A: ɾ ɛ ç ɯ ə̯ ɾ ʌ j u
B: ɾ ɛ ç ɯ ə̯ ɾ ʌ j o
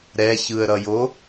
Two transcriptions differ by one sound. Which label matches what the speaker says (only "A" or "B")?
B